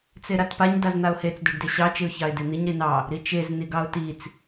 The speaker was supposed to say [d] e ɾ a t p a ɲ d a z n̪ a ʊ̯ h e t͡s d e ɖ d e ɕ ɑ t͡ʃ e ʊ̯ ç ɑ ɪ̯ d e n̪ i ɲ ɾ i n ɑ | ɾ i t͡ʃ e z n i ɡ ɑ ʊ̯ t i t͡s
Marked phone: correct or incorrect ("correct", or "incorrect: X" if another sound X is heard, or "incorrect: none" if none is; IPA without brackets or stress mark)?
incorrect: t͡s